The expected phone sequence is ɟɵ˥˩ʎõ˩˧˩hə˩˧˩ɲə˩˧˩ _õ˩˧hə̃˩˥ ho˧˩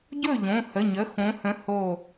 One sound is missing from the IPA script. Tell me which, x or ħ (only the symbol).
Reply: x